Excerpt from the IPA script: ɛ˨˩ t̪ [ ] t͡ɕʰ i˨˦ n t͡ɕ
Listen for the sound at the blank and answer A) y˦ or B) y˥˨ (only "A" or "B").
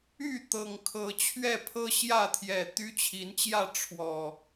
A